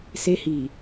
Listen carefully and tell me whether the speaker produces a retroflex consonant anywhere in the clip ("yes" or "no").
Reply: no